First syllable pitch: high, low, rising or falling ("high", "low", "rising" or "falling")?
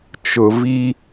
low